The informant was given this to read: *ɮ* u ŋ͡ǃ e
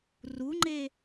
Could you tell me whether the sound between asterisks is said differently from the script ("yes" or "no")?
yes